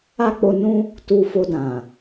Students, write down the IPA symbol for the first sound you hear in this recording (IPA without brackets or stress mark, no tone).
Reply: a